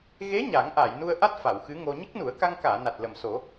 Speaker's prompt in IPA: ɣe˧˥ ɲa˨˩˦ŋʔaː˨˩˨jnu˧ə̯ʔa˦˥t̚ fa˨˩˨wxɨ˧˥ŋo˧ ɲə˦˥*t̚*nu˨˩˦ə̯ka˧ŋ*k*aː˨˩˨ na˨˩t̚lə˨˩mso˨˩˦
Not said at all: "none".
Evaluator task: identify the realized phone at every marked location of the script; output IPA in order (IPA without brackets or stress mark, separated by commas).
k̚, k